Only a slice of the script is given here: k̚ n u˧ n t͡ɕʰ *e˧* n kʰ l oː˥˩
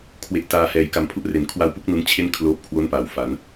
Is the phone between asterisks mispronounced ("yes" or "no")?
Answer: yes